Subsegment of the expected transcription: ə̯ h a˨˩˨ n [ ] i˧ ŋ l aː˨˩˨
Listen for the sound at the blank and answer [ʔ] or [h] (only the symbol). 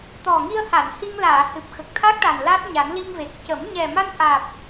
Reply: h